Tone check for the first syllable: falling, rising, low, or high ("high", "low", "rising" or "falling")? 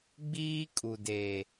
high